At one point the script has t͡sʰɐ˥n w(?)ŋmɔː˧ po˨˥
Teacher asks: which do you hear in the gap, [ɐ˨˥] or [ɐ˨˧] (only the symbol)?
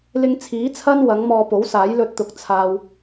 ɐ˨˥